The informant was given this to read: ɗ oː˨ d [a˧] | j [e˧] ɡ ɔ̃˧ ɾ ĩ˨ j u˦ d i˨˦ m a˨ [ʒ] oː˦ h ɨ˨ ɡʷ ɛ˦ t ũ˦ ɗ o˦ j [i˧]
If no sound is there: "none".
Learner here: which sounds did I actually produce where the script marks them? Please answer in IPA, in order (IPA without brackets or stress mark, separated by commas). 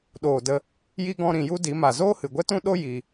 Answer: ə˧, i˧, z, i˧